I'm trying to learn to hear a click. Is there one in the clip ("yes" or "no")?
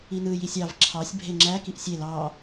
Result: yes